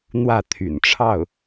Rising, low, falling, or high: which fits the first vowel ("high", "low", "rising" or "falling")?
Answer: falling